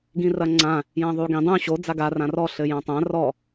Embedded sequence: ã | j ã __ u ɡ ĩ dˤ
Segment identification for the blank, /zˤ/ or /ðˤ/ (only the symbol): ðˤ